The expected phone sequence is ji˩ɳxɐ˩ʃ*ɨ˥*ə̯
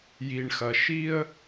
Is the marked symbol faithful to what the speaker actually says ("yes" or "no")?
no